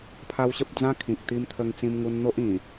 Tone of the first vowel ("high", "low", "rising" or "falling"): high